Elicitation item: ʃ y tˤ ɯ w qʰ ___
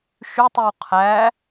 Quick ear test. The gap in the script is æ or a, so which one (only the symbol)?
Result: æ